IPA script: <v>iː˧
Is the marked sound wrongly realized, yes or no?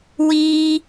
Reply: yes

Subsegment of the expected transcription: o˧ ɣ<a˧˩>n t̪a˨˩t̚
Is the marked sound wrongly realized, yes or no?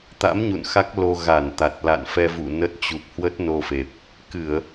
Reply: no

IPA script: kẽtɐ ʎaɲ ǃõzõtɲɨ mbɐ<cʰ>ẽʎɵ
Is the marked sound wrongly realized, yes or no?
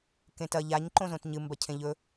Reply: no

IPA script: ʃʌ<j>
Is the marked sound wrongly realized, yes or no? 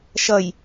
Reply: no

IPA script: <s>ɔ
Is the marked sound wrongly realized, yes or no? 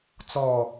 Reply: yes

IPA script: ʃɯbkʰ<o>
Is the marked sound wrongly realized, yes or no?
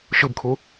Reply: yes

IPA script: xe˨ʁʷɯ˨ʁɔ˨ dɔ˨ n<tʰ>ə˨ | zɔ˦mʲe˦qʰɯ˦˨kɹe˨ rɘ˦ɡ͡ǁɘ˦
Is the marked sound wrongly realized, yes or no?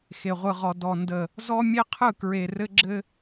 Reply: yes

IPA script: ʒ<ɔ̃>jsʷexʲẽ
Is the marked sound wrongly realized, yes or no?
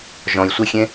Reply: no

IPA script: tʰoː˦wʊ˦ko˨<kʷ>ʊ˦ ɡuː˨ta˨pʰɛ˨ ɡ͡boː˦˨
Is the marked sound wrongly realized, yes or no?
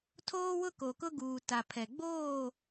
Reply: yes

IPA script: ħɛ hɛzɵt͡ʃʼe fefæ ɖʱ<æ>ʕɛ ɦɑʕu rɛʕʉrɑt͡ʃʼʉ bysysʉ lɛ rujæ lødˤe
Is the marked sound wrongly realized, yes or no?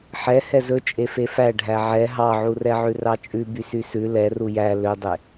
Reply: no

